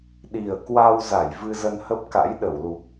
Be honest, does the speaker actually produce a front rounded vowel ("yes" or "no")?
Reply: no